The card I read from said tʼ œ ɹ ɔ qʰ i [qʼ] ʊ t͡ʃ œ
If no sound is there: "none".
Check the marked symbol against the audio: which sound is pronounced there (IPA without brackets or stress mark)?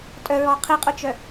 qʼ